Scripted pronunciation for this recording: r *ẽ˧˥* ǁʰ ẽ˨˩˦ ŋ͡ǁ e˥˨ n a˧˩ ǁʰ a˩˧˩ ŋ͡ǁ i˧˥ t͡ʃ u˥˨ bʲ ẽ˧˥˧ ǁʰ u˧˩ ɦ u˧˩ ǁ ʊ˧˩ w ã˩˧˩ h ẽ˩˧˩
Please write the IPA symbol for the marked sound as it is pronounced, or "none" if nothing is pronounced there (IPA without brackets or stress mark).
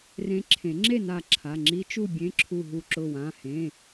ẽ˧˥